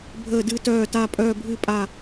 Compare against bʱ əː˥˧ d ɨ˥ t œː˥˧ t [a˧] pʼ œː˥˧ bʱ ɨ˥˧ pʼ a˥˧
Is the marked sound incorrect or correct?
incorrect: a˥˧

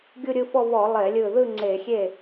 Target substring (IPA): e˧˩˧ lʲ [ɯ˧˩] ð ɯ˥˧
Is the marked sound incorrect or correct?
correct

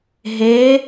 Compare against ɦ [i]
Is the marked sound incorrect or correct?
incorrect: e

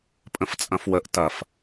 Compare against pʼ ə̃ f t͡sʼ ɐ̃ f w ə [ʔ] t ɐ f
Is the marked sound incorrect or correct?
correct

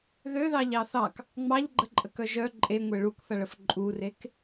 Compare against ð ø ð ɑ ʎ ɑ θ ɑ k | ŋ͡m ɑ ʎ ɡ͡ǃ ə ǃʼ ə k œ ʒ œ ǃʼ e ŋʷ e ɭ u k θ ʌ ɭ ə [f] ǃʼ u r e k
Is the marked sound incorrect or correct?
correct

